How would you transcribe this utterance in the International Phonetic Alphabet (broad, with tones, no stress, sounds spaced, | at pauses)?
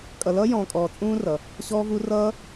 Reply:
kʼ ʌ˨ l ʌː˥ j ɔ̃ː˨ kʼ ɔː˨ t͡sʼ ũː˦ r ʌ˩ | ɕ ɔː˥ v u˥ r ʌː˥